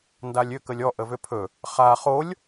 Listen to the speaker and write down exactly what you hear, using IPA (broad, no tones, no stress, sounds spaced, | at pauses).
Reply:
n d a lʲ ʏ k ə lʲ ɔ ʔ ə v ʏ pʰ ɵ | χ a χ o lʲ